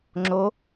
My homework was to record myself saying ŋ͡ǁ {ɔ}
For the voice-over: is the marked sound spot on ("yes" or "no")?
no